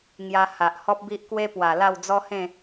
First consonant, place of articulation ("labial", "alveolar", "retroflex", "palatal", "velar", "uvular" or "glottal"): velar